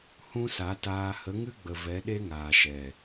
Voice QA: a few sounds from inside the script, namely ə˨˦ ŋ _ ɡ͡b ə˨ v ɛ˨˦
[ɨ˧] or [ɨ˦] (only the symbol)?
ɨ˦